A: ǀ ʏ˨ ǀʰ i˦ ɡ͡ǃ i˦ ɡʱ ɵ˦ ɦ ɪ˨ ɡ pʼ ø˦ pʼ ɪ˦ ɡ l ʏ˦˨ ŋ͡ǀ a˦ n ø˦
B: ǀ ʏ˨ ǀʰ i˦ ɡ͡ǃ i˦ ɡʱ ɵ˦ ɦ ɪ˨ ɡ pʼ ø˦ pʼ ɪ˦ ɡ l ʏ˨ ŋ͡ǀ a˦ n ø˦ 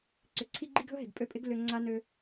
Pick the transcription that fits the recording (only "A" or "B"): B